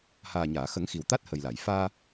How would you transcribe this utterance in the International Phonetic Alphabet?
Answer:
haː˨˩ɲaː˨˩˨xə˨˩˦ŋ xi˨˩wt̪a˦˥t̚hə˨˩jla˨˩˨j faː˧

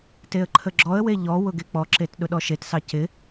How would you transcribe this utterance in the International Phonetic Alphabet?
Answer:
teə̯ǃʰəɡ͡ǁɔə̯we ʎɔ wʊɡek͡pɔǁet ɗʊɗɔʃetsɑ cɪ

